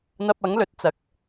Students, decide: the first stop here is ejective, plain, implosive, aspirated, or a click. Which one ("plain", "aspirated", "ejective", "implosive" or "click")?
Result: plain